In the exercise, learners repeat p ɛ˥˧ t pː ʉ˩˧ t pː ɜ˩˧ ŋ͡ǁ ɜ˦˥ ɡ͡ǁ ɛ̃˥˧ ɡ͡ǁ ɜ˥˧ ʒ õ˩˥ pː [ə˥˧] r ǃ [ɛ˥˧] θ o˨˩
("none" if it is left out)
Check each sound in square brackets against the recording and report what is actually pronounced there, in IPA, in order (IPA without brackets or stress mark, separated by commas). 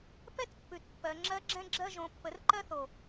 ə˩˥, ɜ˥˧